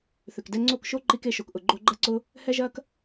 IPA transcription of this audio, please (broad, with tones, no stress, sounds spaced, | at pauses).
θ ʏ˨ k d ɛ˧ ŋ͡ǀ o˦˨ k ʃ o˦ ǃ i˧ k e˧ ʃ o˨ k ʔ ʊ˨ ɡ͡ǃ o˧ ɡ͡ǃ ɐ˦ ǀ ʊ˦ | h ɛ˦ ʒ ɐ˦ k